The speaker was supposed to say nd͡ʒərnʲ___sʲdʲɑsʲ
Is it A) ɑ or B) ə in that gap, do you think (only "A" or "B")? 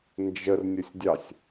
B